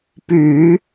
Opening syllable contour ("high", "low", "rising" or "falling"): low